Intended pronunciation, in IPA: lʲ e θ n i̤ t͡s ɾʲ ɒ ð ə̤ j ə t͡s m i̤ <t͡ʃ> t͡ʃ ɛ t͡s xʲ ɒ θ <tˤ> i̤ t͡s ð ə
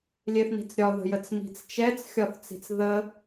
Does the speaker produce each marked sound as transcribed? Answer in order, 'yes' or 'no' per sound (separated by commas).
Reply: no, no